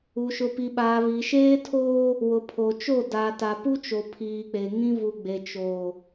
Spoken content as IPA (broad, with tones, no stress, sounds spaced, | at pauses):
u˨ ʃ ʊ˨ p i˨ ɓ aː˨ β iː˨ ʃ eː˦ tʰ oː˦ | w ʊ˨ pʰ o˨ t͡ʃ o˦˨ d aː˨ t a˨ p u˦ t͡ʃ o˨ pʰ iː˨ k͡p e˨ ŋ ĩ˦ v u˨ ɡ͡b e˨ t͡ʃ oː˨